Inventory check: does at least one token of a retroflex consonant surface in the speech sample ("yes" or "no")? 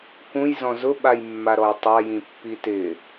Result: no